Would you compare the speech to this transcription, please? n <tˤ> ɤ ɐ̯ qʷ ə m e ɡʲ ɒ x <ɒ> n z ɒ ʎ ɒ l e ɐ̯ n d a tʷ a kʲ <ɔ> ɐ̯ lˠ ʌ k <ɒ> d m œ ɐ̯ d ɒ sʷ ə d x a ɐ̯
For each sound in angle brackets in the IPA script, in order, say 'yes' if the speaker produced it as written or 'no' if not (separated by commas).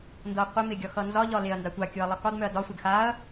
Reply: no, no, no, yes